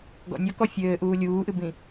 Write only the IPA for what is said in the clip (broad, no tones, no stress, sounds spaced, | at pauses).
ɡ ɔ̰ nʲ ɔ k ɔ fʲ ɘː ʔ uː lʲ uː ʔ ɨ b ĩ